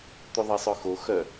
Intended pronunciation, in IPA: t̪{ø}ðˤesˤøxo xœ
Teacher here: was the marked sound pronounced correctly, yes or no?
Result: no